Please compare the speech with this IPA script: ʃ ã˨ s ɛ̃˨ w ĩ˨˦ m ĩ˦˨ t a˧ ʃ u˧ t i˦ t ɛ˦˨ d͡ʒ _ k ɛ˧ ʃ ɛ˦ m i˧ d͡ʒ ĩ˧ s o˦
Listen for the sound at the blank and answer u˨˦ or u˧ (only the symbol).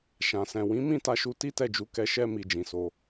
u˨˦